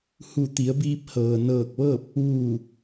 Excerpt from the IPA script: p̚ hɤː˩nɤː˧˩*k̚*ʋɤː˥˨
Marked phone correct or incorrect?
correct